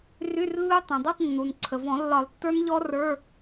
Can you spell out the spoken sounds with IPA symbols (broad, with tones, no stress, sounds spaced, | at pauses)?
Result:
r y˧˥˧ r lː u˦˥ tˤ œ̃˩ dˤ u˧˥˧ tˤ nː u˩ n ǀʰ ə˩ v ɔ̃˨˩˦ lː ɒ˨˩˦ lˠ tː ə˞˦˥ n ʎ ɔ˦˥ r ə˞˧˥˧